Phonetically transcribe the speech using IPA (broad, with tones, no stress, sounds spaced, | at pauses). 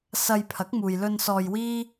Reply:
s ɐ˧ j pʰ ɐ˨˥ k̚ m uː˨ j l ɵ˧ n s ɔː˧ j w iː˥